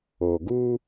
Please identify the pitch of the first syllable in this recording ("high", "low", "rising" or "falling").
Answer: low